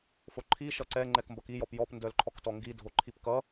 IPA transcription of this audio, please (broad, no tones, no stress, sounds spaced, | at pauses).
f o ǃʰ i ʃ ʌ ǀ ɛ ŋ͡ǃ ɛ k m b ʌ k i j ɔ p j ɔ p n d œ l ǃʰ ɔ k t ɔ ŋ ɡ i dʱ o ǃʰ i p k ʌ